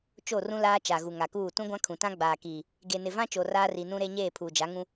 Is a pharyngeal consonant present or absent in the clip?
absent